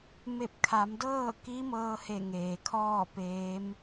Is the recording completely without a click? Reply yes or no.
yes